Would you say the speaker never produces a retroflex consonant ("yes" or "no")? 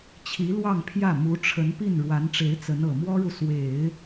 no